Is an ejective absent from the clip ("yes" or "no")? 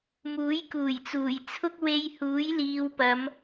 yes